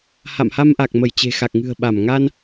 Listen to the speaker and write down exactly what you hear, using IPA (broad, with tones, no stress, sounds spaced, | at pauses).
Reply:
h a̰˧˨ m h a˧ m ʔ a˨˩ k̚ m ə˧˩ j t͡ɕ e̤˨˩ x a˨˩ k̚ ŋ ɨ̤˨˩ ə̯ ɓ a˧˩ m ŋ a˧ n